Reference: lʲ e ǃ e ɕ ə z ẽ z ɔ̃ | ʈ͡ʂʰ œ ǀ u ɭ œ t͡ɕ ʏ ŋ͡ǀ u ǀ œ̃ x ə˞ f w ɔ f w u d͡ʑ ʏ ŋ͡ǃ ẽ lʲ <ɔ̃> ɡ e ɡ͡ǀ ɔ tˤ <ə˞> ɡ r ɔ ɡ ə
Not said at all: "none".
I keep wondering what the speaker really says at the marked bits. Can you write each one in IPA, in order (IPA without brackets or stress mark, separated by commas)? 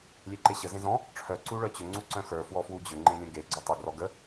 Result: ə̃, ə